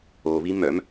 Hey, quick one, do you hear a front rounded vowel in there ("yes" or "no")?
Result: yes